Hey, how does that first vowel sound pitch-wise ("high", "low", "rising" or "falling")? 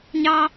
high